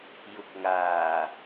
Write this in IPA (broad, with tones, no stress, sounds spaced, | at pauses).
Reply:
j ʊ˨ k̚ ŋ aː˨˩